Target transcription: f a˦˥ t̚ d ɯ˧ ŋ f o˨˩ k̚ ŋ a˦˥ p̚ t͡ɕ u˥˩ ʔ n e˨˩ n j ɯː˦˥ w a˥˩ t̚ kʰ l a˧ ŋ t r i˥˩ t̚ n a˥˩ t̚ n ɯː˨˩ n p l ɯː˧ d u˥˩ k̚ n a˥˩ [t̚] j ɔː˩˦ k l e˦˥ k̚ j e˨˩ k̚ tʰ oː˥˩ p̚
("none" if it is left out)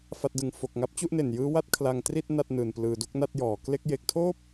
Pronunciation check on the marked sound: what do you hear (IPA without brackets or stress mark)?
t̚